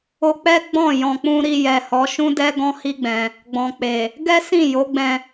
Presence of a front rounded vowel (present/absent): absent